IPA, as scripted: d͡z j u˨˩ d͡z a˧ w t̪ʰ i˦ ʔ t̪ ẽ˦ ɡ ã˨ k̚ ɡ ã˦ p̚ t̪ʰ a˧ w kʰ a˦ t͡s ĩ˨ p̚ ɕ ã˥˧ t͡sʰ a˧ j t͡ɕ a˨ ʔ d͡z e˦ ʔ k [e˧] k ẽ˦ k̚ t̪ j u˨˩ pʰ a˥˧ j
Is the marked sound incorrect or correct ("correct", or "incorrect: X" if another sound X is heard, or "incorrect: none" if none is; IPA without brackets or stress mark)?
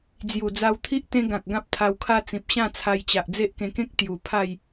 incorrect: ẽ˧